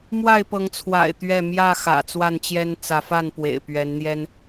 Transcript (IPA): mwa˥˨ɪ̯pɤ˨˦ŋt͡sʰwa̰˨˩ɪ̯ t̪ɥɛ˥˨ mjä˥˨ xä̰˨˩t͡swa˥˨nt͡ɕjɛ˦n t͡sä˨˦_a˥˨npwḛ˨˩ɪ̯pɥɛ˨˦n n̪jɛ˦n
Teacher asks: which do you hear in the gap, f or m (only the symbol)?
f